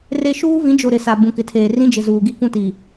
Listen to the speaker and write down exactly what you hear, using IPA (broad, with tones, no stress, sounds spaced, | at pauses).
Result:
r e˦ ʃ uː˦ v ĩ˨˦ d͡ʒ o˨ ɾ ɪ˨ s a˨ b ũ˨ k ɪ˨ tʰ eː˨ r ĩ˦ d͡ʒ ɪ˨ z uː˨ ɡ i˦ k ũ˦ t iː˨